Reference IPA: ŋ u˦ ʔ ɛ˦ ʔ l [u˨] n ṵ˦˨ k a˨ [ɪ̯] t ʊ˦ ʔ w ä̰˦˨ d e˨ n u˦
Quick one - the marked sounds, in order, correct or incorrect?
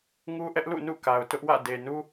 incorrect, incorrect

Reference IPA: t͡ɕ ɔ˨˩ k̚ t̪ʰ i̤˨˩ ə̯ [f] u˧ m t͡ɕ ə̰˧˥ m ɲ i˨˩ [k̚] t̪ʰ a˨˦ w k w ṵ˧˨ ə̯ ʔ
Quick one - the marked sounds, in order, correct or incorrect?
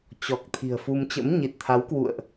correct, incorrect

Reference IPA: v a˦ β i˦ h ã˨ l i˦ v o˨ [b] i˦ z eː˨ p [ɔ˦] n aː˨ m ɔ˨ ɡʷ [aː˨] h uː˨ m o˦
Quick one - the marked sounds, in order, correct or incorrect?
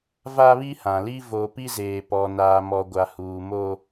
incorrect, incorrect, incorrect

